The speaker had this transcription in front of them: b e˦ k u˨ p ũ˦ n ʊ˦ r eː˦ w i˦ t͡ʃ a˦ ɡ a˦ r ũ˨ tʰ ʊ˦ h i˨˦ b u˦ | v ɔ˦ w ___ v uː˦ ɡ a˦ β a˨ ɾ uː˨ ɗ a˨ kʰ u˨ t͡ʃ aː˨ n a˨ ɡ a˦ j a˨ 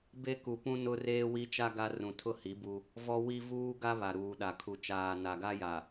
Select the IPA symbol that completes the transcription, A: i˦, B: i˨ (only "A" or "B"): A